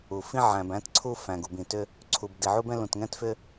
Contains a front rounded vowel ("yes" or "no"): yes